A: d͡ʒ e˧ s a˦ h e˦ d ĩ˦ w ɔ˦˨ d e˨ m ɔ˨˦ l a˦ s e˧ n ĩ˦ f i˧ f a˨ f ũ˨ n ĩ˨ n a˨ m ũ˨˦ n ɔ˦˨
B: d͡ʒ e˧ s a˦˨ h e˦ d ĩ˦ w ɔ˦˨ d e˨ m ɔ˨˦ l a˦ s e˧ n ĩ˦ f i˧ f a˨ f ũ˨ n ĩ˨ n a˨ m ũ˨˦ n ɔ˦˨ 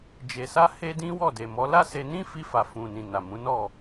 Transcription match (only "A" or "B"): A